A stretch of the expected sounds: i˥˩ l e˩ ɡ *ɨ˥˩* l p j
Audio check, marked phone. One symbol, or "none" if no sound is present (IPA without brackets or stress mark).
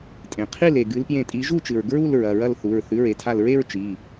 ɨ˨˦